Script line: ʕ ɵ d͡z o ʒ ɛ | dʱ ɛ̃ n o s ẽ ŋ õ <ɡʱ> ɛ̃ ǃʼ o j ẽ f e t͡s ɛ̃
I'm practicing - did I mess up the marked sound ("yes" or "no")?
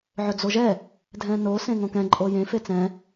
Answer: yes